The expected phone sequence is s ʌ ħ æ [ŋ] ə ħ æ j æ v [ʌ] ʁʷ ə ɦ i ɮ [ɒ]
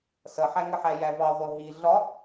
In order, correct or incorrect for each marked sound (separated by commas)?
correct, incorrect, correct